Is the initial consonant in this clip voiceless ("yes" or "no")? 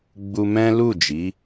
no